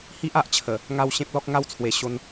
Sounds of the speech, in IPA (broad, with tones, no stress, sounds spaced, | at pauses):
h i˦ ʔ a˨ ʔ t͡ɕʰ ə˨˩ | ŋ a˥˧ w ɕ ẽ˦ p̚ l ɔ˦ k̚ ŋ a˥˧ w t͡sʰ w e˨˩ ɕ o˧ n